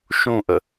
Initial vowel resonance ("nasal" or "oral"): nasal